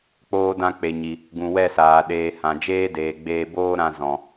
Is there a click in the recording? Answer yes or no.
no